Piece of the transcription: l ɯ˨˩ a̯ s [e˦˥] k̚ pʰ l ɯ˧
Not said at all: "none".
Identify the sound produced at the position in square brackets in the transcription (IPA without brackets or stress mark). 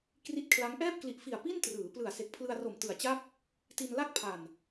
e˨˩